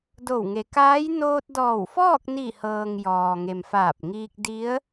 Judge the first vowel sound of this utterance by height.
mid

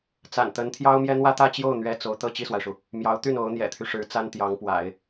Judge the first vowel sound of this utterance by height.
low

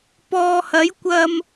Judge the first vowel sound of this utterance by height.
mid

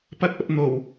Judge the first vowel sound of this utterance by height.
low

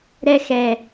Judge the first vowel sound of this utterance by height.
mid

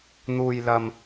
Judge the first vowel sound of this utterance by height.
high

